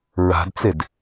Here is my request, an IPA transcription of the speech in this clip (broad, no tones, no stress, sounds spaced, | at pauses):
ɹ a̤ d t͡s e d